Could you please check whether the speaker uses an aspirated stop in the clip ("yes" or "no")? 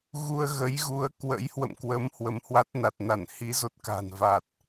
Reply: no